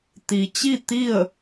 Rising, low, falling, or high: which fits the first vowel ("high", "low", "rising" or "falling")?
low